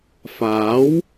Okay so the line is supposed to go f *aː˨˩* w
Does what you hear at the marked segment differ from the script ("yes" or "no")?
yes